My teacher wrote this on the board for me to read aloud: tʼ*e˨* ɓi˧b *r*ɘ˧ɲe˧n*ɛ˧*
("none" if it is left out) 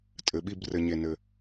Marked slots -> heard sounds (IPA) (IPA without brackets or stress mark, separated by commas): ɘ˨, r, ɘ˧